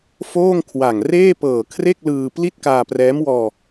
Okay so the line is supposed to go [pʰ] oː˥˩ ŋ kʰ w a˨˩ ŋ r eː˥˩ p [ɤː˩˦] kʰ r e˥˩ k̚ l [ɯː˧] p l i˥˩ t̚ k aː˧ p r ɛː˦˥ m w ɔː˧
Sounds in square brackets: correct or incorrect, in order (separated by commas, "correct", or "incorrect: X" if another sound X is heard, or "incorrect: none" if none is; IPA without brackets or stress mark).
incorrect: f, incorrect: ɤː˨˩, correct